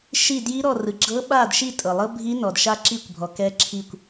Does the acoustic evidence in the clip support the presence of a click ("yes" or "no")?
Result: yes